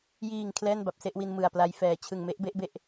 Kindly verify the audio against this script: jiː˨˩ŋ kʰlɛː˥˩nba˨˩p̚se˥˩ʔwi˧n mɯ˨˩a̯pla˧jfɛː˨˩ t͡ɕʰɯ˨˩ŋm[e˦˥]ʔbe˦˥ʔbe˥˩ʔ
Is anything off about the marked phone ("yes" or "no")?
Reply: no